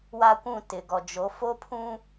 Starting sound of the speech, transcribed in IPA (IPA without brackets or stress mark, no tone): w